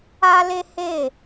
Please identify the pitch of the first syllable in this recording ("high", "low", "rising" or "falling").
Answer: high